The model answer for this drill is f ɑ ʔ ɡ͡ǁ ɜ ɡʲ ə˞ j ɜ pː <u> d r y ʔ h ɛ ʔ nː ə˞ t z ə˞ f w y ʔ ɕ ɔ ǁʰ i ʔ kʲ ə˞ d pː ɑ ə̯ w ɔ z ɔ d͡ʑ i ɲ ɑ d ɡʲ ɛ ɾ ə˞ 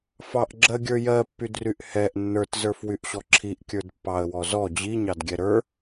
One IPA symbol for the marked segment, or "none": y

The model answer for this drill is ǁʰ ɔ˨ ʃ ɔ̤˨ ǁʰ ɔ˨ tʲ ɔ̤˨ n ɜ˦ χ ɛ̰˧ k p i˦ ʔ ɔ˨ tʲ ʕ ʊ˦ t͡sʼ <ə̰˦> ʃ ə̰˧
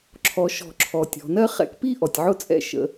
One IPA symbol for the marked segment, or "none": ɛ̰˦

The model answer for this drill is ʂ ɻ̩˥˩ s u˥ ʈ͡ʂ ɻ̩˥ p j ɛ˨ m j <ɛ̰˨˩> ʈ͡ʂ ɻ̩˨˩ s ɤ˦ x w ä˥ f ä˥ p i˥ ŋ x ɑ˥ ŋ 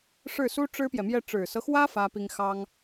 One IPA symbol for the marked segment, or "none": ɛ˥˩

